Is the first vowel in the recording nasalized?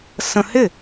yes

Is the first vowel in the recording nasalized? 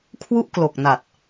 no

